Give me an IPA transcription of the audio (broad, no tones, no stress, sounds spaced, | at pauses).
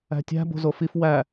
æ̤ tʲ æ̤ b o̤ z o f i f w æ